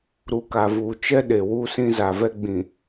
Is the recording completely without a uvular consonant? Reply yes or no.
yes